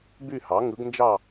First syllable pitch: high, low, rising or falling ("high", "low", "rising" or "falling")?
falling